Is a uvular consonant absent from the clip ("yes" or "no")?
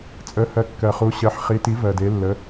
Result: no